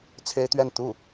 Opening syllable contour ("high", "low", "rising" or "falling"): high